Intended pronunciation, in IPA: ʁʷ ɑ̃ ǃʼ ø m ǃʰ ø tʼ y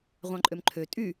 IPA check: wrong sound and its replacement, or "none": none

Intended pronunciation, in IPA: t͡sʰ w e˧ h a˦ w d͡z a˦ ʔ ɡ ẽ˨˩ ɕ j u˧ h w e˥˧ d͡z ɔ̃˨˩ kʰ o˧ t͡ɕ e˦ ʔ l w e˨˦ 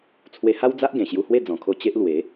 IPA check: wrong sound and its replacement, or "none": none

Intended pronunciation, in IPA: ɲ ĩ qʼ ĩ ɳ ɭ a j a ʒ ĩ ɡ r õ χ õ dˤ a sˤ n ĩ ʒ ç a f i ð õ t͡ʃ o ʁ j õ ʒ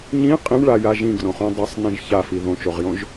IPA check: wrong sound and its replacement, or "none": none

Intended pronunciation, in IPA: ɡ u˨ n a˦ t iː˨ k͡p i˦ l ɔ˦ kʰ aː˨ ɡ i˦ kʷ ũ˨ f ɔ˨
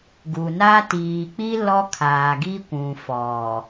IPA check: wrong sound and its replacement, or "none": none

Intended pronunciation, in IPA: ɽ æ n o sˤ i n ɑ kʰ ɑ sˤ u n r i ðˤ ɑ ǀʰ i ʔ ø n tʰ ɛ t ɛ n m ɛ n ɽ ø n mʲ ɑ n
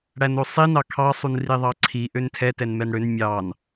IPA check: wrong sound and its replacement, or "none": none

